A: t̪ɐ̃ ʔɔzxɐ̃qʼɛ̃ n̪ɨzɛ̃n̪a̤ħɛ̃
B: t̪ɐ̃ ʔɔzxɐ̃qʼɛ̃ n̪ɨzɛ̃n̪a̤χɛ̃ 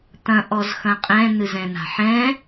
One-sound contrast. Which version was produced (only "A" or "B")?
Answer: A